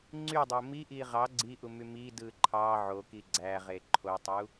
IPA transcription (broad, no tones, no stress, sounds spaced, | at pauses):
ŋ͡ǀ y dˤ o m i ʔ i ʁ ɑ ɡ͡ǀ i ʔ u m y m i d ɯ ǃʰ ɑ ʕ o k i ɡ͡ǀ æ ʁ e ǃʰ o tˤ u